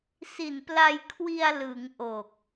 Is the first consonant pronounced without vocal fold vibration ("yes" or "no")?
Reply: yes